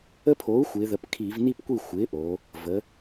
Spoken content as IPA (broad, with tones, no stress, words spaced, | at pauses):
ə˦˥pʰo˩˥u̯xʷɪː˩˧ðə˩˧p kʰiː˧˩˧vni˥˧pkʷi˥˩ xʷɪː˩˥ʔoː˩˧ | və˩˧